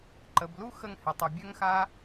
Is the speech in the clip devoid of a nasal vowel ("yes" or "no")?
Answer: yes